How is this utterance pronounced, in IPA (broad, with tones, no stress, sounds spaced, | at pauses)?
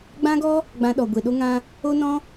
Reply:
ɡ͡b ã˦ ɡ ɔ˦ | ɡ͡b ã˧ ɗ ɔ˨ ɡʷ e˨ ɗ o˦ ŋ ã˦ | o˦ n ɔ̃˦